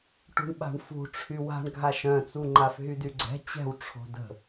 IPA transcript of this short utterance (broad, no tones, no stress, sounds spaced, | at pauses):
ʈ ṳ ɳ ɓ a̤ ɳ f ṳ ʈ͡ʂʰ y w a̤ ɳ ɡʱ a ʃ œ̃ t͡s u ŋ͡ǃ a f ɦ y d y ɡ͡ǀ ɛ̤ t͡ɕ ɛ̤ w ʈ͡ʂʰ o̤ d ə̤